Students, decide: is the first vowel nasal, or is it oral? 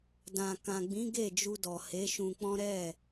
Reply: nasal